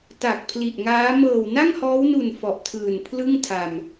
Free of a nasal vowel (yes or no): yes